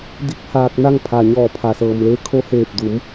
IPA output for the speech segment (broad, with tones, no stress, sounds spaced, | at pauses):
d i˧˥ k̚ h aː˧ k̚ n a˥˨ ŋ pʰ a˩ ɲ ɔː˧˩ pʰ a˩ s ɤː˩ m l e˧ kʰ o˧˥ h eː˧˩ p̚ d u˩˧ m